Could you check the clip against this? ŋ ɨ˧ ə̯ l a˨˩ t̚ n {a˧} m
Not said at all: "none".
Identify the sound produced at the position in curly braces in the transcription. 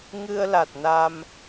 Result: a˧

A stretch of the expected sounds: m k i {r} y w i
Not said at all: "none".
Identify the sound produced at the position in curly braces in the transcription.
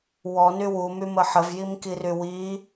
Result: r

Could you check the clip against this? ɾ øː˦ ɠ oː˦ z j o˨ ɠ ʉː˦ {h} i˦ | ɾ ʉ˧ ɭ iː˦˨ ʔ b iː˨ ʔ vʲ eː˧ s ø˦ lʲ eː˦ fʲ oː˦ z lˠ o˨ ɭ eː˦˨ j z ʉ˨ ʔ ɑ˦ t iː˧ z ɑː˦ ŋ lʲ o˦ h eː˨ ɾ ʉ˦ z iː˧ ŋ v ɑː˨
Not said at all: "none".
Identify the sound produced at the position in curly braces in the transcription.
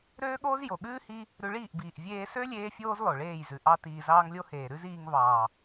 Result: h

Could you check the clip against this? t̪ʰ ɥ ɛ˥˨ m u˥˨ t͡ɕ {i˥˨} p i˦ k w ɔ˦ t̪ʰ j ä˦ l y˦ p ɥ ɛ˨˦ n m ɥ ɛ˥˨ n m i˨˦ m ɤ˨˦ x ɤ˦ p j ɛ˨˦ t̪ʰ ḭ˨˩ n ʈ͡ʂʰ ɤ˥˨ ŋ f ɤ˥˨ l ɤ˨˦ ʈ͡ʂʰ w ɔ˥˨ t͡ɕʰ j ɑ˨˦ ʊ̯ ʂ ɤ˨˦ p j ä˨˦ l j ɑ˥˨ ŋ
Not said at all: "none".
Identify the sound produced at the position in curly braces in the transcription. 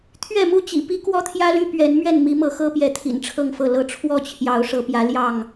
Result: ḭ˨˩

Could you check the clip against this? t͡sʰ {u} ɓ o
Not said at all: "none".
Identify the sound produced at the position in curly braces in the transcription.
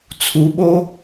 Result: u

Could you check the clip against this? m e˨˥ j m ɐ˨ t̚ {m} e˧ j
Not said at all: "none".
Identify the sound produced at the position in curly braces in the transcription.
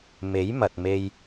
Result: m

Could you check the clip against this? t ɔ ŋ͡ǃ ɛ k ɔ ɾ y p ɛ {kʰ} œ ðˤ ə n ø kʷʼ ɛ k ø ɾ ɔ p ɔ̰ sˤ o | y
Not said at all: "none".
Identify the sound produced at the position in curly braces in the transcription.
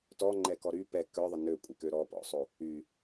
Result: k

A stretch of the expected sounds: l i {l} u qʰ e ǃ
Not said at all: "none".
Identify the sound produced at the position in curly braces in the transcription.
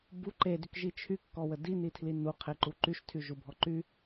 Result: n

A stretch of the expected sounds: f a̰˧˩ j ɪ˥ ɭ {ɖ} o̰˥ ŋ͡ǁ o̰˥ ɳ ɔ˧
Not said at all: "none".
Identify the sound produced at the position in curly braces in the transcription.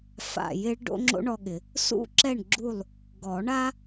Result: ɖ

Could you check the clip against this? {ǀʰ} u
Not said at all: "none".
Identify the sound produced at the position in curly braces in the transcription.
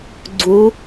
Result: ɡ͡ǀ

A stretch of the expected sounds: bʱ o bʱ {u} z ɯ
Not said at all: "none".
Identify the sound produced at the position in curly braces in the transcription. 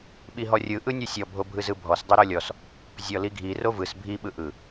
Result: ɯ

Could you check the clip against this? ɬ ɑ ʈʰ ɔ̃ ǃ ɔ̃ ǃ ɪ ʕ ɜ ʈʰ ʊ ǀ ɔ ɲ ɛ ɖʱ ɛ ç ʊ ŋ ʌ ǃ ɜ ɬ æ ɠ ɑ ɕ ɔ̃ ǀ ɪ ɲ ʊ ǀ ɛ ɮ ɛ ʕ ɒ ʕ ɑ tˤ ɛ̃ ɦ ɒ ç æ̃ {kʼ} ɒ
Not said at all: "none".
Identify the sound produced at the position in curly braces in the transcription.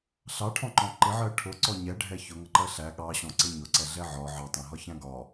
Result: ɡ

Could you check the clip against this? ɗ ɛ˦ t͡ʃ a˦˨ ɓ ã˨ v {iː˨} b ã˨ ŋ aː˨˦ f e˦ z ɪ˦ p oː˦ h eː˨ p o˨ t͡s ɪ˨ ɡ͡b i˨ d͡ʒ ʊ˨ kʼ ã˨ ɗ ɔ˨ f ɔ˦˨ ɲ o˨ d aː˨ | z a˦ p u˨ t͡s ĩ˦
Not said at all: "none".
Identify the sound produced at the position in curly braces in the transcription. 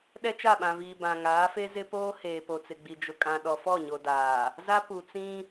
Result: iː˨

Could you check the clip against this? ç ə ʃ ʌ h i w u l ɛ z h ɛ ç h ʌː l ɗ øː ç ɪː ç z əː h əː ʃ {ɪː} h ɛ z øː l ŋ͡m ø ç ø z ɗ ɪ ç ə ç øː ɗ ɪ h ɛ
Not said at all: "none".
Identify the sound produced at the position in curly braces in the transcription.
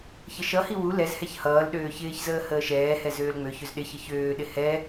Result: ɛː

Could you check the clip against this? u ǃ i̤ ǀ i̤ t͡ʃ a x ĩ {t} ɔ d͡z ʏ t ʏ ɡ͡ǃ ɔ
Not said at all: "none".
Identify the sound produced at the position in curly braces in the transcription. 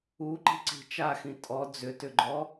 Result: tʼ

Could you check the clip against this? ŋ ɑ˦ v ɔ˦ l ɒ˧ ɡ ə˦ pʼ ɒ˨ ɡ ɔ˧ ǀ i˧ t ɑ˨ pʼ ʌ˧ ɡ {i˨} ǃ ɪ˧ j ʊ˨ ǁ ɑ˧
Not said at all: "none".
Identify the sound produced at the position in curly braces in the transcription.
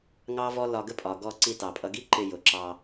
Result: i˦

